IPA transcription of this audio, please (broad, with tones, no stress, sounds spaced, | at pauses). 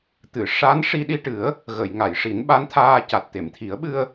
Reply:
t̪ ɨ˨˩˨ ʂ a˧˥ n ʂ i˧ ɗ i˧ ʈ ɨ˨˩˦ ə̯ | ɣ ə˨˩˨ j ŋ a˨˩˨ j ʂ i˨˩˦ n ɓ a˧˥ n t̪ʰ aː˧ c a˨˩ t̚ t̪ e˨˩˨ m t̪ʰ i˨˩˦ ə̯ ɓ ɨ˧ ə̯